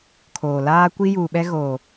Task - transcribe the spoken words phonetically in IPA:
kʰ oː˨ l aː˦ kʷ i˦ j uː˨ ɓ ɛ˦ ɣ oː˨

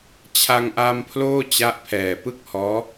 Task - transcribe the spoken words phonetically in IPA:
t͡ɕʰ a˧ ŋ ʔ a˧ m pʰ l oː˥˩ t͡ɕ a˦˥ ʔ pʰ ɛː˨˩ p ɯ˥˩ k̚ h ɔː˦˥

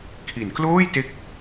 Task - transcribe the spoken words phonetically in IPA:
kʰ i˩˦ n k l oː˥˩ j t e˦˥ k̚

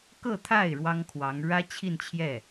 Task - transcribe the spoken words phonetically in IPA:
k ɤ˥˧ t̪ʰ a˥˩ ɪ̯ ɻ w ɑ˥ ŋ kʰ w ɑ˧˥ ŋ ɻ ä˥ t͡ɕʰ i˥˧ n t͡ɕʰ j ɛ˥˩

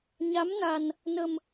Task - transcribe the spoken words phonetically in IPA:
ɲ a˨˦ m n a˨˩ n | n ə˨˩ m

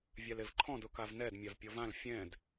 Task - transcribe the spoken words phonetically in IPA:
vʲ a l e v ǃʰ ɔ̃ d ʊ k a v n ɛ d mʲ a v pʲ ɔ v ã l fʲ ɛ̃ d

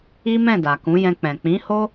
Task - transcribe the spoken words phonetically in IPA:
i˦ m ɛ̃˦˨ d a˨ k ũ˨˦ j ɛ̃˧ k͡p ɛ̃˨ k͡p ĩ˨˦ h o˦

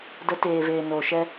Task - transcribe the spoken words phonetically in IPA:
d ə˨˦ t eː˨ v eː˨ n oː˨ ʃ ɛ˧

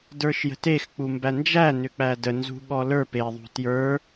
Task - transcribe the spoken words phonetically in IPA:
d ə˞ ʃ j ə̤ t e x k͡p u m b æ n d͡ʒ æ n ʏ k͡p æ d ə n z ṳ ɠ ɔ l ə˞ p e ðˤ ṳ t j ə˞

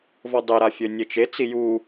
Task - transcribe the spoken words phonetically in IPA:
v ɔ dˤ e ɾ a fʲ ø nʲ e t͡ʃ e t͡s i j u

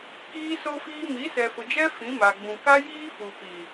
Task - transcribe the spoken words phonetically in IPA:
k iː˦ s o˦ f iː˦ m i˨˦ s ɛ˨ f ʊ˨ d͡ʒ ɛ˦ f ĩ˨˦ m a˨ ɡ͡b ũ˨ k a˦ j iː˦ f u˨ p i˨

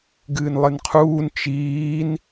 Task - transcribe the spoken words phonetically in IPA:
ɡ ɨː n lˠ ɨ n qʰ uː n t͡ʃ iː n

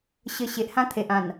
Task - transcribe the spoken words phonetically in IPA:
ɕ ə˧ ɕ e˨ ʔ h ã˦ t̪ʰ e˨ ʔ ã˨˩ n

